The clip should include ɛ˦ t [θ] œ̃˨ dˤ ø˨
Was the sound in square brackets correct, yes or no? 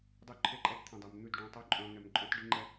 no